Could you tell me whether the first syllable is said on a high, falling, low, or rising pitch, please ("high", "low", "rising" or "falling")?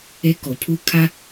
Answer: high